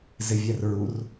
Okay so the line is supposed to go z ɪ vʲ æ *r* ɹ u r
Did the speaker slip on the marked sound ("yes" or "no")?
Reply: no